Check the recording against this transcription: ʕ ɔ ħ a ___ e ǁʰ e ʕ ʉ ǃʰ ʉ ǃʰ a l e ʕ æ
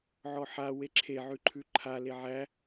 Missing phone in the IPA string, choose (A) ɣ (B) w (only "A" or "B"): B